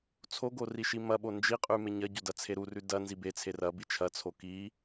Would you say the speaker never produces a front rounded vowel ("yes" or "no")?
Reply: yes